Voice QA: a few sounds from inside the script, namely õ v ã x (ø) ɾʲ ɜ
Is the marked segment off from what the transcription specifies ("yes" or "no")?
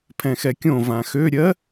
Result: no